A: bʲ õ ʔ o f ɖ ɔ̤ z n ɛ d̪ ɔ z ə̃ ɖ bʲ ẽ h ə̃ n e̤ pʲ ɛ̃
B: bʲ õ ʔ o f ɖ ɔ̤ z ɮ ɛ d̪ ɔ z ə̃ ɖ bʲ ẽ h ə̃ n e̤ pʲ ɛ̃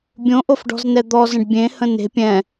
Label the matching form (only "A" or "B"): A